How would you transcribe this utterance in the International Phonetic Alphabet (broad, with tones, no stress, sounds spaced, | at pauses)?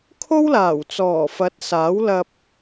kʰ o˥ w l aː˨˩ w t͡s ɔː˨˩ f ɐ˨˥ t̚ s aː˨˥ w l ɐ˧ p̚